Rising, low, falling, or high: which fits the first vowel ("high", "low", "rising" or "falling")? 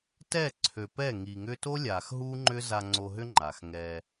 falling